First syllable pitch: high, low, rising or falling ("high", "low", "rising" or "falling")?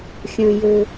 low